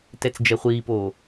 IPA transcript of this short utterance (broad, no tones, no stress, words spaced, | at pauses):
tɛt͡sd͡ʒɛχʷiːpoː